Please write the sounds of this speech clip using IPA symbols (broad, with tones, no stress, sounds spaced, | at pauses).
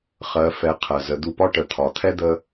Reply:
χ ɜ˩˧ f ɛ˩˧ qʰ ɜ˩ z ə˩˧ d̪ u˧ p ɒ˥ ʈ ə˩˧ t̪ʰ ɒ˩˧ t̪ʰ ɛ˥ d̪ ə˥